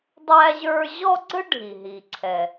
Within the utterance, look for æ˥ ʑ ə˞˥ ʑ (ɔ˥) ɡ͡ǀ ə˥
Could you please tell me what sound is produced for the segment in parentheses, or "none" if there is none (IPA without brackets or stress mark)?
ɔ˥